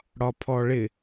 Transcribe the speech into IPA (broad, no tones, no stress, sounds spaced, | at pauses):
ɽ ɒ pʰ ɔ ɭ ɪ